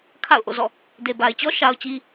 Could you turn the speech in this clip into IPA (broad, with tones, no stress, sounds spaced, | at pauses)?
kʰ a̰˦˨ ʊ̯ ʔ o̰˦˨ z ɔ̰˦˨ | d e˨ b a˨ ɪ̯ t͡ɕ ɔ˦ ʃ a˦ ʊ̯ t͡ɕ i˦